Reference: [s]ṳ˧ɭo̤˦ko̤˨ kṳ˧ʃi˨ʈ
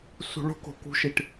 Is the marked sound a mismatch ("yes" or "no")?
no